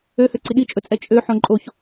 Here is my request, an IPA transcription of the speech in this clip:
øhø ǀiɗit͡ʃʼɵt͡sʼɛ t͡ʃʼø ħõǃʼoç

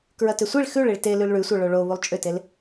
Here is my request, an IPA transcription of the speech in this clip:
kɹɐtʏsʷiɭ xʉɭiɭ te lʉlɭʉsʷə˞ ɭoɭo βulˠt͡ʃʼʏtel

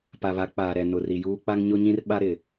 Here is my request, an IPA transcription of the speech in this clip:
pa˨βa˨˦k͡paː˨ɾɛ˨ nʊ˨ri˨juː˦ k͡pa˦ŋɲʊ˦ɲĩ˦rɓa˦ ɾɪ˨

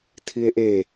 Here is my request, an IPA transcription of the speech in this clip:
tʰie̯ʔe

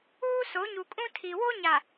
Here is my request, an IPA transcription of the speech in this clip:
uː˦ so˨˦ɲu˨kʼũ˦ tʰi˨ wo˦ɲa˨

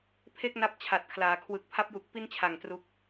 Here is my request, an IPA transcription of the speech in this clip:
pʰe˥˩k̚na˦˥p̚ t͡ɕʰa˨˩t̚kʰlaː˩˦ kʰwɯ˨˩k̚ pʰa˦˥p̚ju˨˩k̚ pi˥˩nt͡ɕʰa˨˩ŋ tru˦˥k̚

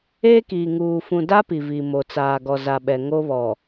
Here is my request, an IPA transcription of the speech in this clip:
eː˦kiː˨ŋuː˨ fũ˨da˦ pi˨vi˨mo˨ t͡saː˨ɡɔ˨za˨ ɓɛ˨ŋo˦βɔ˨

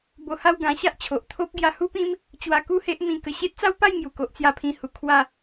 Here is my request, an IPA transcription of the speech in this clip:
bo˧ha˥˧w ɡã˧ɕa˦ʔt͡ɕʰo˨ʔ t̪ʰo˦p̚ ɡja˧hu˦pĩ˦m | t͡ɕwa˧ku˥˧he˦ʔ mĩ˧kə˧ ɕe˦t̚t͡sa˦wpa˥˧jŋju˨˩ ko˦ʔt͡sja˥˧pʰĩ˥˧hu˧ kʰwa˥˧

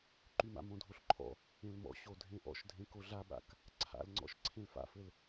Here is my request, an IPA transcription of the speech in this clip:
ǃyma̰ mõdʱoɬǃʰɔ̰ | ẽlmɔ̰ ɕodʱẽʔɔ̰ʃ dʱẽkoɮaɓa̰k | ǀʰa̰lŋ͡ǀɔ̰ʃ ǀʰẽlfa̰fɘl

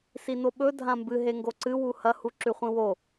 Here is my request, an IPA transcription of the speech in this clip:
sinoɓɵ dʱãmbɨ ɦeŋɡoǀɨ wuhɐ huǁʉχʷĩwo

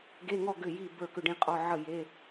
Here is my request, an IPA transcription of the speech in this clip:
ɡe˧˥˧ŋɔ˥˨ ɡʏ˥˨ji˥˨ bə˞˥˨kʏ˥˨ɖĩ˥˨qʼɔ˧˥˧ ʕə˥˨ je˧˥˧

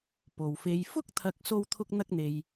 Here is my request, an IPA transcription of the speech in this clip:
po˨wfe˧j fʊ˥k̚t̪ʰɐ˧k̚ so˥wt̪ʰʊ˥k̚ n̪ɐ˥k̚n̪e˧j

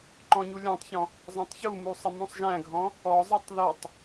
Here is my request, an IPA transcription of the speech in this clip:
ǃɔ̃ɲulʲɔ̃tˤçɔ̃ | zˤɑ̃tˤçumu sˤɪmũsˤʒæ̃ɡʱɔ̃ | ɔzˤætˤ ðʌtˤ

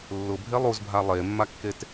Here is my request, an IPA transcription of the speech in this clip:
lːʊbʱe lˠuzbʱa lˠemːakːet

